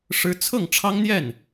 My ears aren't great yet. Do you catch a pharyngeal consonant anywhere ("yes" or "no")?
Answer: no